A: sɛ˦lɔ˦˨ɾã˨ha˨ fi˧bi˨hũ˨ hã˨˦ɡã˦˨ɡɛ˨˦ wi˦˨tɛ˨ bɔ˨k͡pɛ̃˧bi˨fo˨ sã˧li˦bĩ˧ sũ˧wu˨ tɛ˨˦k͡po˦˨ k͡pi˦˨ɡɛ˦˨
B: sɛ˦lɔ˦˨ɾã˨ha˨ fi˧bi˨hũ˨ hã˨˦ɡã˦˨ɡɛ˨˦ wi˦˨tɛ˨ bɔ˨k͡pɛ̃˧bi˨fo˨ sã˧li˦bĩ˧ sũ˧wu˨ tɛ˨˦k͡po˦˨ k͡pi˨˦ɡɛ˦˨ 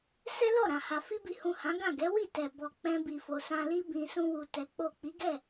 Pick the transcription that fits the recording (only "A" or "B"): B